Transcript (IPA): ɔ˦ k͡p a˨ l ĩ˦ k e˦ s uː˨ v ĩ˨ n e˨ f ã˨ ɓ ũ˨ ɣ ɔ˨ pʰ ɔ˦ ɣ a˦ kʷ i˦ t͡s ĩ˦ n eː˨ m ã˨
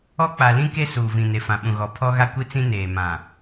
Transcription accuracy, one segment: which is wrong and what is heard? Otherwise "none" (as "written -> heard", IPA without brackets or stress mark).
none